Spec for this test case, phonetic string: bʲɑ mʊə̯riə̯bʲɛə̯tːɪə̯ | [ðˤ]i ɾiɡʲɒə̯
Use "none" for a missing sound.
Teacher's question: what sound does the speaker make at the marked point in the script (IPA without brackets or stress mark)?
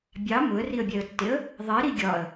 ðˤ